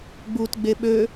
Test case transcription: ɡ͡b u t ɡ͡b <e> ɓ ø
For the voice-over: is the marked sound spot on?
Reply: yes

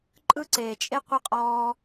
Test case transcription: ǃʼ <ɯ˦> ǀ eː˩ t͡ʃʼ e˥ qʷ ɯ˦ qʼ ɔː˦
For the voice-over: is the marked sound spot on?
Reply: no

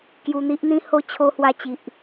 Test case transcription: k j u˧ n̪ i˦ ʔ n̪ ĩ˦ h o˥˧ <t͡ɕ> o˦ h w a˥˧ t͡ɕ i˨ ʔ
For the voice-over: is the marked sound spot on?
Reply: no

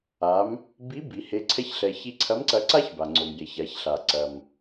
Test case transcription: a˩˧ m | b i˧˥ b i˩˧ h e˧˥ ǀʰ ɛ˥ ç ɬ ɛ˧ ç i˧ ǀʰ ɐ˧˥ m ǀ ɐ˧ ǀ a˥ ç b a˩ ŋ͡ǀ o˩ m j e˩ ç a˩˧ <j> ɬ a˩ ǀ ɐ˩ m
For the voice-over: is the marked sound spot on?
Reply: no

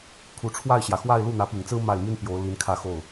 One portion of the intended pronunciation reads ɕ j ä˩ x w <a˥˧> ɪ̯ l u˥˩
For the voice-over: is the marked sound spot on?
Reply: yes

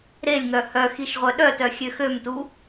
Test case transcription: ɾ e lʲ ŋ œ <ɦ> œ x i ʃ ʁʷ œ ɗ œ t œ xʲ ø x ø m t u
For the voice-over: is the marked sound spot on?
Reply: no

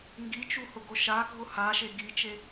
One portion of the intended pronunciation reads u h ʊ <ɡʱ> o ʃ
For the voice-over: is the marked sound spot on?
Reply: no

